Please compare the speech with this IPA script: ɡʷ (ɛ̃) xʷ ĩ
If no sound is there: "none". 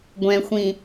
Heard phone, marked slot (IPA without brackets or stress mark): ɛ̃